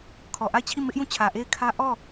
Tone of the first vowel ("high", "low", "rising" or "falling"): low